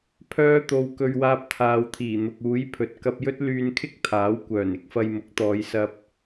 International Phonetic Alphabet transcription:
pʰ œː˧ t̪ o˨ w k ɵ˧ ɥ w aː˧ p̚ t̪ʰ aː˨ w t̪ʰ iː˨˩ n̪ ʊ˨ k̚ uː˨˥ j pʰ ɵ˨ t̚ k ɐ˧ p̚ j ɵ˥ t̚ l yː˧ n kʰ ɪ˥ k̚ t̪ʰ aː˨˥ w kʷ œː˨˩ n ɪ˥ k̚ f ɐ˧ j m ʊ˨˥ k̚ t̪ ɔː˨˧ j s ɐ˧ p̚

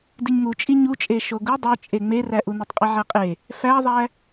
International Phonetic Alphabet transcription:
d i ɲ ŋ u t͡ʃʼ i ɲ u t͡ʃʼ e ʃ o ɡ u dˤ o t͡ʃʼ e ŋ͡m e r æ ʔ u n e tˤ qʼ i ʕ æ qʼ e | f æ ðˤ æ

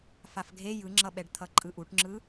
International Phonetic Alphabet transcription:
f a f ɡʱ e j ɯ ŋ͡ǁ ʌ ɓ ɛ ɖ t̪ʰ ʌ ǃʼ ɯ ʔ u ʈ ŋ͡ǁ ɯ

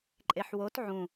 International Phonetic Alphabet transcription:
ǃʼ e ħ w o t ʕ ũ

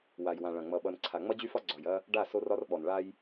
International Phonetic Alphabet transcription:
w a˨ j w ã˨ ɭ ɐ̃˨ ŋ͡m ʌ˨ ɓ ʌ˨ n ǀʰ a˨ ŋ͡m ʌ˦ d͡ʑ y˦ f ɒ˦ ɡ͡ǀ ɒ˨ j ɐ˦ | ɖ a˦˨ s o˦ r ɒ˦ r ɓ ɔ˨ n ɭ a˦ j

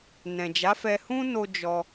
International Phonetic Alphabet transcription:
n ɛ̃˨ d͡ʒ a˨˦ f ɛ˧ h ũ˦ n o˧ d͡ʒ ɔ˧

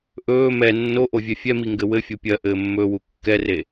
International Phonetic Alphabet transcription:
ʔ ɵː m ɛ nː o ʔ o vʲ ɛ fʲ ɛ m i ŋ ɡ ɘ w ɘ fʲ o pʲ ɜ ʔ ɘː mː ɵː w u kː ɛ r e

